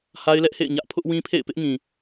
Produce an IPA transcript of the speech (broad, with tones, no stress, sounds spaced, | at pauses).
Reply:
h a˦ ɪ̯ l ɛ˦ ʔ h ḛ˦˨ ɪ̯ ɲ ä˦ ʔ pʰ ʊ˦ ʔ w ĩ˦ pʰ ḛ˦˨ ɪ̯ p ɪ˦ ʔ ŋ ĩ˨